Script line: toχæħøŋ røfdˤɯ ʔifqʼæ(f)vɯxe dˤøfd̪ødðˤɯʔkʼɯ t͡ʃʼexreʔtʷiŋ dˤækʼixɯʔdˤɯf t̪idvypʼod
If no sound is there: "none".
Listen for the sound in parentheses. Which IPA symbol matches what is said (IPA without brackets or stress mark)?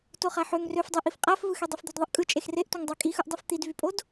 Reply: f